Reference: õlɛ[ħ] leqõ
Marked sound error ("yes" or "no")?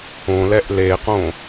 yes